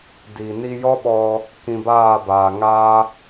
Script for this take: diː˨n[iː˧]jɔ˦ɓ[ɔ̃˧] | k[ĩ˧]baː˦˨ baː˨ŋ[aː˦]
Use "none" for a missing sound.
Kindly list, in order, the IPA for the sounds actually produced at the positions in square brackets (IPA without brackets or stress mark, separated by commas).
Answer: i˧, ɔ˧, ĩ˧, aː˦